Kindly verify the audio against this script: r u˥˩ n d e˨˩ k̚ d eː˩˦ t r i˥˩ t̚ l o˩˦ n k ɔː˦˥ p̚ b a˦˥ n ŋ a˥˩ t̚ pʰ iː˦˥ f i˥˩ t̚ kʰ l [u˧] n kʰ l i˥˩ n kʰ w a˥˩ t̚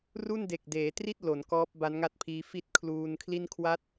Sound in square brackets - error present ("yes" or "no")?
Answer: yes